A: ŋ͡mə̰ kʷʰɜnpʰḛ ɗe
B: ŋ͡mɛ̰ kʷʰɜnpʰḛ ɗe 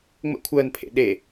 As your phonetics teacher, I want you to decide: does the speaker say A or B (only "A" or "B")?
A